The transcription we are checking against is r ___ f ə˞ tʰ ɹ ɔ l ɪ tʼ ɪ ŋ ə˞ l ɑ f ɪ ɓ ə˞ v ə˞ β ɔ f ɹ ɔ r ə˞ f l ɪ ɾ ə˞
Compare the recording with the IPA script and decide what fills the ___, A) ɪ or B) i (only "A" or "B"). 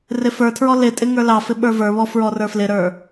A